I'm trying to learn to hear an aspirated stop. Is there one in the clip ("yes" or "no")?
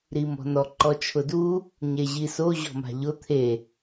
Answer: yes